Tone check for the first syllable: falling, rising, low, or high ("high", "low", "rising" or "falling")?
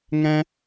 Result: high